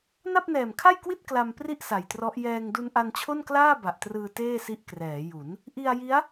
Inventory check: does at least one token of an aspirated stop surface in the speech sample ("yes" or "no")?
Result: yes